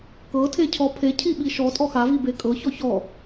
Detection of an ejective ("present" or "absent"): present